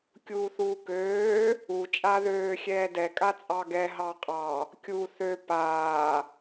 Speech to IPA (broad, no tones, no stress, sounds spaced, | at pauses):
kʲ uː θ uː k øː | u t͡ʃʼ a ð øː xʲ ɛː d ɛ kʼ a t͡sʼ ɑ ɡ ɛ ɦ ɑ qʼ ɑ | kʲ u θ ø p aː